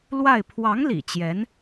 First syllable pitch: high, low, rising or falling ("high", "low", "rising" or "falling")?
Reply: falling